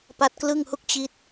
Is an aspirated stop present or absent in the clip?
absent